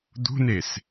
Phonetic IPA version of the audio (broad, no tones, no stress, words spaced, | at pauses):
d̪ṳnes